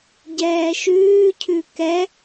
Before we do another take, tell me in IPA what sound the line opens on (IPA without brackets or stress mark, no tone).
ɟ